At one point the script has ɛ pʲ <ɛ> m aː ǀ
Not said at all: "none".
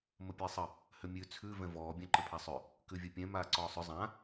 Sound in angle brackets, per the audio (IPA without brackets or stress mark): ɛ̃